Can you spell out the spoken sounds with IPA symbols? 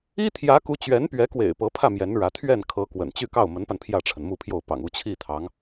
i˥t̪ʰjä˧˥ku˧˥ t͡ɕɥɛ˧˥npɥɛ˧˥kwḛ˨˩ɪ̯ pɤ˧˥pʰä˥˩ mjɛ˧˥nɻä˧˥ t̪ʰɥɛ˥˩nkʰɤ˧˥ kwə̰˨˩nt͡ɕy˥˧ kɑ˥˩ʊ̯mə˧˥npa˧n pʰjä˥˩ʈ͡ʂʰə˩n mu˥˧pʰjo˥˩ʊ̯ pɑ̰˨˩ŋu˥˧t͡ɕʰi˥˩t̪ʰɑ˧˥ŋ

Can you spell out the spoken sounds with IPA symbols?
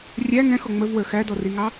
rʲæ ŋɛ̃xɔ ŋ͡məvwə˞ xædɔriŋɑ

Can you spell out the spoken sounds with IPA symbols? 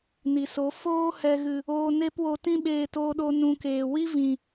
ni˨so˨˦ foː˦ hɛ˨ɣɨ˨ | oː˧ne˦pwo˧ tĩ˦ɓeː˧toː˧ɗo˧ nũ˧keː˨ wi˦vĩ˨

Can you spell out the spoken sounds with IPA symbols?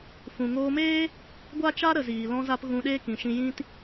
fũ˨ŋoː˧meː˦ | ɡʷa˦t͡ʃa˦ ɾə˨ziː˨ lɔ̃˧za˧p ɣũ˧ɗeː˦kĩ˨ʃĩ˧ jĩ˦t

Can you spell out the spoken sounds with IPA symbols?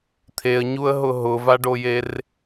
t̪ʰeə̯ɲuə̯ɦʊ ɦʊvaɖojer

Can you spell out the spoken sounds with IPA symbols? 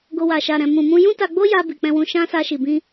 ɡo˧wa˨ ʃa˨ ɾɛ̃˨mũ˨mũ˧ jũ˦ta˧ɡ͡bo˦ja˧ bi˨k͡pɛ̃˧wũ˧ʃã˦ sa˧ʃi˨bĩ˧

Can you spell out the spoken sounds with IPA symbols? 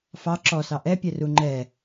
fɑ ǁɔsɑ ʔɛpʲɛru ŋ͡ǃɛ

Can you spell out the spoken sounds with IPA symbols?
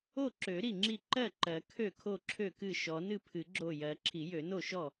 o˥˩ǁø˨˩˦ ɾi˥˩ŋ͡ǁi˥˩ ǃɜ˥˩ǃɜ˨˩˦ kʰø˥˩kʰo˥˩ǁʰø˥˩kɨ˥˩ ʃɔ˨˩˦nɨ˥˩pʰɨ˨˩˦ ɡ͡ǁo˥˩ jɜ˨˩˦ ǁʰi˨˩˦jø˨˩˦no˥˩ʃɔ˥˩

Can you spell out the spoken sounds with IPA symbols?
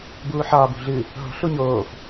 buːħɒːb ṳɮɨ | ɦo̤ ɬuɲoːf

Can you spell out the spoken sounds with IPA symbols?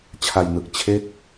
t͡ɕʰa˧jnɯ˨˩k̚ t͡ɕʰe˥˩k̚

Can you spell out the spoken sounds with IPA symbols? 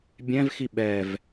bʲɛ̃vxi ɓɛv

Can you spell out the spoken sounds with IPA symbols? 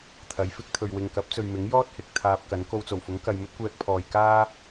t̪ʰɐ˨˥jfɪ˨˥k̚t̪ʰɵ˨ɥ wɪ˨ŋkɐ˨˥p̚t͡sɵ˨ɥmɪ˨˥ŋ jɔː˥t̚hɪ˨k̚ t̪ʰaː˧p̚kɐ˨˥n ko˧wt͡so˨˩wfʊ˨˥ŋ kɐ˨jmɵ˥t̚kʷɛː˧k̚pʰɔː˨j kaː˥

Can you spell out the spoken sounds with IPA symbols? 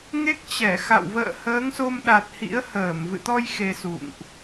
ŋe˦˥k̚ t͡ɕɛ˧˩xa̰˧˨w və̰ː˧˨həː˨˦ŋso˧mɗa˨˩t̚ hḭ˧˥ə̯həː˧˩m vɨ̰˧˨t̪ɔ˧j xe˧sṵ˧˨ŋʔ

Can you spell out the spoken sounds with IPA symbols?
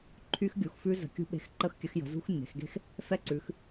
ǃʰy˦˥xɡʲu˩˧xfʉ˦˥ zə̤˩˧kʲṳ˨˥ ɓe̤˨˥xǃə˥˧xkʲə˨˥xjə̤˩˧ zṳ˦˥xnːe̤˩˧xɡe̤˥˧x | fɛ˦˥ǀʉ˩˧x

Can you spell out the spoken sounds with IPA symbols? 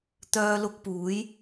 t̪œː˥lʊ˥k̚ puː˨˥j

